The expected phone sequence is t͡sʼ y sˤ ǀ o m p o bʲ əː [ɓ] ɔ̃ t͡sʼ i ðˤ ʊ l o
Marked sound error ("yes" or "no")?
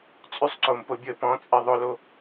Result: yes